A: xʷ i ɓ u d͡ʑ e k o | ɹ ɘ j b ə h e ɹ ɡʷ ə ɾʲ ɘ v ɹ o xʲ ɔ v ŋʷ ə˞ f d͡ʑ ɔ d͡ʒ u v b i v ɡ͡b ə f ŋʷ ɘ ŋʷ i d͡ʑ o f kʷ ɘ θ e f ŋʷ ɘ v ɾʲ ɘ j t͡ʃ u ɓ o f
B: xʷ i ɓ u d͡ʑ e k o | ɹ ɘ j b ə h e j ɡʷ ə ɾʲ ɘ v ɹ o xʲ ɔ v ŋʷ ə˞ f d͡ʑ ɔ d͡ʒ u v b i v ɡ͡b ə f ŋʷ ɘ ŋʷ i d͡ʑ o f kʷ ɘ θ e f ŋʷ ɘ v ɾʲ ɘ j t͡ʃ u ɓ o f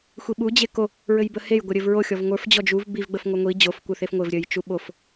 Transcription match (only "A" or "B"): B